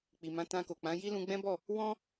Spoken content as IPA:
k͡pi˨mã˨˦ tã˧ko˨k͡pã˨˦ ji˦lũ˧ɡ͡bɛ̃˦bɔ˦˨ | wɔ̃˦

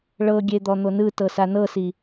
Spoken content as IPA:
ɭɤɡʲe d̪ɔn̪onɯtɤ sanɤsi

